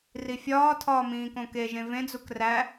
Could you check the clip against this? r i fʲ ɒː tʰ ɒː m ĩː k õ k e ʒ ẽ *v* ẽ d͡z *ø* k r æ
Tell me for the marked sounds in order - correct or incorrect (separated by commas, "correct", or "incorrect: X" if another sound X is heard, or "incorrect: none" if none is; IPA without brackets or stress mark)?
correct, incorrect: u